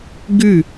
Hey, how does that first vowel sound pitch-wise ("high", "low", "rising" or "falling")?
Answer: falling